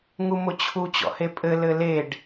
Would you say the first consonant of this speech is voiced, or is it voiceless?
voiced